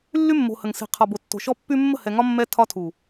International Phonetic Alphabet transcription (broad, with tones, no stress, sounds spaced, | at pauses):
lː y˦ mː o̤˨ h ə˨ ŋ s i̤˨ qʰ ɒ˨ b o˨ tː o̤˨ ʃ ɔ˦ pː y˦ mː ə̤˦˨ h ɛ˨ ŋ ɒ˦ mː ɛ˦ tʰ ɒ˦ tʰ u˨